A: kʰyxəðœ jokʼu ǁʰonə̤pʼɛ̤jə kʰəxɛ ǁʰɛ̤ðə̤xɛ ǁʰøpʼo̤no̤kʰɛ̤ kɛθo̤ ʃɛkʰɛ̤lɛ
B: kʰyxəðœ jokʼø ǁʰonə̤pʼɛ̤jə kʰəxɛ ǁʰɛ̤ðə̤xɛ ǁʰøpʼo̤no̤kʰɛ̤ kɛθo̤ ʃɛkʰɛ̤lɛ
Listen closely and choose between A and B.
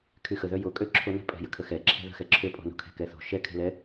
B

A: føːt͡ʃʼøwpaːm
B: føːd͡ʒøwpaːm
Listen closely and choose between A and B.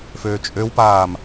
A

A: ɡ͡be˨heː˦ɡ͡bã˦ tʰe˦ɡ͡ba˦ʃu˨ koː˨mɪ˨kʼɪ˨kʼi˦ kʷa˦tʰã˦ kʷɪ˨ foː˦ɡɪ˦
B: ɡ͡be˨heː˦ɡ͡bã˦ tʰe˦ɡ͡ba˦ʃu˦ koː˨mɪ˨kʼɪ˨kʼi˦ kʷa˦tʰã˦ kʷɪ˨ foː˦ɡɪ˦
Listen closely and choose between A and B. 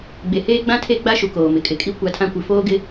A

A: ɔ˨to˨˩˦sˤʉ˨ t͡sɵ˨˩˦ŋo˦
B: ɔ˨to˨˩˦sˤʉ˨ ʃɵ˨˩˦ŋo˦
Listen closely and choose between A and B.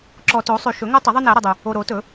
B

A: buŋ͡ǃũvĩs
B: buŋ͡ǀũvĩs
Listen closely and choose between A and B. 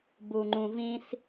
A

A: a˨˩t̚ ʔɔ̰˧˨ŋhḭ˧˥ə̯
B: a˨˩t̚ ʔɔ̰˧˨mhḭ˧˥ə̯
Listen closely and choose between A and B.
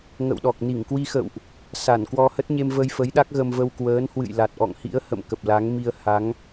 A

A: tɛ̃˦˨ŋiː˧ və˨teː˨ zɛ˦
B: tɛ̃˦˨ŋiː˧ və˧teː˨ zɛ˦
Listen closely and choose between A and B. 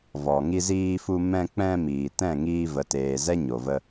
A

